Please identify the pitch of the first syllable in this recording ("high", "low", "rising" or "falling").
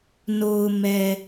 low